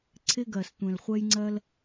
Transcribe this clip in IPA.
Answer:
ǀʰ ɪ˥ ɡ ɜ˩ s tʷ ɛ̃˩ l χʷ ɛ˥ j ŋ͡ǀ ɜ˥ l

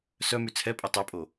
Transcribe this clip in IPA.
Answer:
s œ m y t͡sʰ ɛ pʼ e tˤ ɛ pʼ o

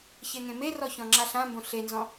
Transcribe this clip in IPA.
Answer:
ç e ŋ ẽ m e r ɔ ç ɔ̃ ŋ͡ǁ a ɬ ã m b õ ɬ e n z ɔ̃

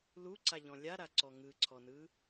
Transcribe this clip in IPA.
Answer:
l u ǀ a ʎ ɔ̃ lʲ a ɾ a ǀ ɔ ŋ ɯ ǀʰ ɔ n ɯ

